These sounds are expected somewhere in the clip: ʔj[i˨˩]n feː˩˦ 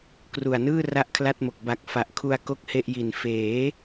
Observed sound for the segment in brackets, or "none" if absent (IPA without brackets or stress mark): i˨˩